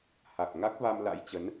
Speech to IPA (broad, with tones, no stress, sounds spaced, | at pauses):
h a˨˩ k̚ ŋ a˦˥ k̚ v a˧ m l a̰˧˥ j t͡ɕ ə˨˦ n